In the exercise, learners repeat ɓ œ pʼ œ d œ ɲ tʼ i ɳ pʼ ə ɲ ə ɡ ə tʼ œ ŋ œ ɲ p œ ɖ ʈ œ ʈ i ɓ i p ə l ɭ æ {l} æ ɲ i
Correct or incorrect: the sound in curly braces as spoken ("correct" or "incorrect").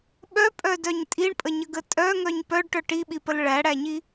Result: incorrect